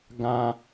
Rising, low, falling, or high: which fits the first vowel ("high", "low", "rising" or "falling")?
high